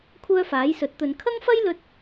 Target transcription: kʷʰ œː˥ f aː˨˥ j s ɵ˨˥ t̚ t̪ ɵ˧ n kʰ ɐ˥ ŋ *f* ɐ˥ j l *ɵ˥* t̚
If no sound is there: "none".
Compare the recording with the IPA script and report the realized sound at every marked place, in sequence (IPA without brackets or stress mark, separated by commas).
f, ɵ˥